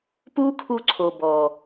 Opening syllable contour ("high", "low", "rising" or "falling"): high